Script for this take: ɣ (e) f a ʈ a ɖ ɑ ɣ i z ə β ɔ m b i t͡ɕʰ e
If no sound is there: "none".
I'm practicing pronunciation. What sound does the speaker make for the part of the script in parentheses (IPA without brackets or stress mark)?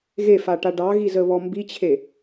e